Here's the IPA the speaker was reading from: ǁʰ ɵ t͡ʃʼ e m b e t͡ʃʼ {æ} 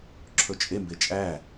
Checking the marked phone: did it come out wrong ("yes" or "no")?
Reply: no